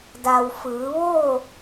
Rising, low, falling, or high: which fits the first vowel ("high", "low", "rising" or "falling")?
low